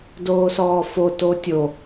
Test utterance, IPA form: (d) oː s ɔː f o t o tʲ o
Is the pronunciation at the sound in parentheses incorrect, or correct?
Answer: correct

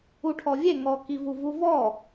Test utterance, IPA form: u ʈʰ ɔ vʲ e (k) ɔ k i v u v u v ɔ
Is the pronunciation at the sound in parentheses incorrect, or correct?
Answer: incorrect: ŋ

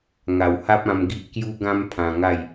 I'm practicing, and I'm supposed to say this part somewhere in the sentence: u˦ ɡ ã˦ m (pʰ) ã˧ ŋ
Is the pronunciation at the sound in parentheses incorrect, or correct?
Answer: correct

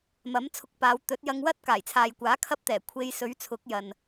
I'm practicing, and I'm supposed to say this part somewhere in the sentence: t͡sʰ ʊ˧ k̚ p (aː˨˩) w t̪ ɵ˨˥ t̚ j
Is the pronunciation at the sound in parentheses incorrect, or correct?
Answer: incorrect: aː˨˧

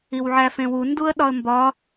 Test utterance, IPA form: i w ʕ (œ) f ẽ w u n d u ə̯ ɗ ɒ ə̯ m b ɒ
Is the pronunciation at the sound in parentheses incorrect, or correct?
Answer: incorrect: æ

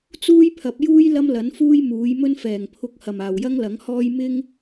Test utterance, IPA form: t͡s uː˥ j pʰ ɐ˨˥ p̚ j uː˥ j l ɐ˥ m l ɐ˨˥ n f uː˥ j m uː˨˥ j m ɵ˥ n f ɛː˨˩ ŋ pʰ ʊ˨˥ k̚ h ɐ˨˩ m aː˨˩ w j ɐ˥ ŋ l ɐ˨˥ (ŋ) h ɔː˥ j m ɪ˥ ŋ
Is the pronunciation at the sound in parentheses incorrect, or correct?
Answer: correct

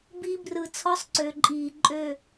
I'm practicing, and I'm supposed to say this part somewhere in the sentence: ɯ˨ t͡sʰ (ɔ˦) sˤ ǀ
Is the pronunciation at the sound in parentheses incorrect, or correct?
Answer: correct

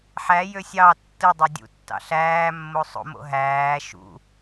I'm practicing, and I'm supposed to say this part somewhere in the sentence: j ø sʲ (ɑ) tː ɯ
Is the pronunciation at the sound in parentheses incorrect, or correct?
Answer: correct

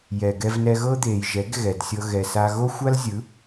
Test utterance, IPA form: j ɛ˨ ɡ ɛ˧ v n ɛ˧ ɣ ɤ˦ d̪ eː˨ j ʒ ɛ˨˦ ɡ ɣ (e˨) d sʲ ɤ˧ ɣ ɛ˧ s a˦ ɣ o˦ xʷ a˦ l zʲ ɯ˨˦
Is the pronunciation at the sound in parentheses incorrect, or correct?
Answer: incorrect: ɛ˨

